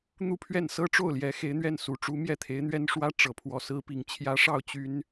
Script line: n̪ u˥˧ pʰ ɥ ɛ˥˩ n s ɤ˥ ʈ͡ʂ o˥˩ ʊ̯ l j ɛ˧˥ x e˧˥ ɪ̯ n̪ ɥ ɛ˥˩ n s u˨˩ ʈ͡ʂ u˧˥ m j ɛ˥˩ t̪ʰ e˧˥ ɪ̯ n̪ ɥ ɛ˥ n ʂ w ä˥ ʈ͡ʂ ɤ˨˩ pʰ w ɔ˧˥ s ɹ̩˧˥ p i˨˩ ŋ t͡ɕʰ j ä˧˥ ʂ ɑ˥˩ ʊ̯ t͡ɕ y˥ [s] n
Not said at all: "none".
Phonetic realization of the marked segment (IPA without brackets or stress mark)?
none